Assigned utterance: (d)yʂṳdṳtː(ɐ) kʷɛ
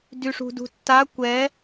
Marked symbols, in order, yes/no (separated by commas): yes, no